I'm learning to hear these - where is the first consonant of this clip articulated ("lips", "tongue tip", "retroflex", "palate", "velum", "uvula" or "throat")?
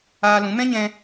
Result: tongue tip